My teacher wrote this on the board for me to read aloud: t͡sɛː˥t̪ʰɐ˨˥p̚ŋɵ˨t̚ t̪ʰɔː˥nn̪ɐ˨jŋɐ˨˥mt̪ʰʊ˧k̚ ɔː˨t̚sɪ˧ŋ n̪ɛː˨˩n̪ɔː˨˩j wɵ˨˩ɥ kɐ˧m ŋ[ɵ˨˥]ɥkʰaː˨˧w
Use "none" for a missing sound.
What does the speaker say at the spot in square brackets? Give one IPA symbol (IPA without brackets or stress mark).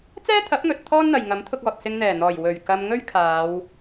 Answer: ɵ˥